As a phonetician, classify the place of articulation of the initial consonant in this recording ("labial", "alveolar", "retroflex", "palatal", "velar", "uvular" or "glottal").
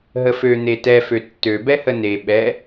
glottal